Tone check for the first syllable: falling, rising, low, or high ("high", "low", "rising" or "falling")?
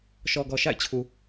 low